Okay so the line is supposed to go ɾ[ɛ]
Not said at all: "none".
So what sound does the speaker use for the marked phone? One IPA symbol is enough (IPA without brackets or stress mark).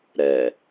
ɛ